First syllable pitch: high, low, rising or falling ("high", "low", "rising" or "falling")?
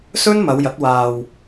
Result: high